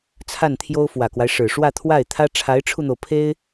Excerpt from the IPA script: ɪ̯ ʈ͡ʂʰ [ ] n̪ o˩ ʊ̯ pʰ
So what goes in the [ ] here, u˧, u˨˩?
u˧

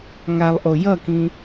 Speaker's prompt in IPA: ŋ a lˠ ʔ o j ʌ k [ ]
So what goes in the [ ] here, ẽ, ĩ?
ĩ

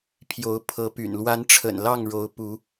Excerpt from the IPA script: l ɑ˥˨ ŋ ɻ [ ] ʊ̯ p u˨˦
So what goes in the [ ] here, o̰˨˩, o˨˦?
o˨˦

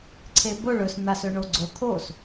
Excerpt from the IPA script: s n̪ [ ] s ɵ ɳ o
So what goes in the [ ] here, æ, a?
a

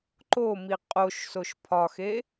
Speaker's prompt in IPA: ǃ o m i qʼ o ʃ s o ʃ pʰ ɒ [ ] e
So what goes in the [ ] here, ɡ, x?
x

